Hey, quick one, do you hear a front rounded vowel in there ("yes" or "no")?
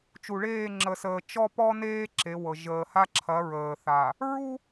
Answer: no